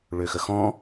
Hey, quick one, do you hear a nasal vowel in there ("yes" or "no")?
yes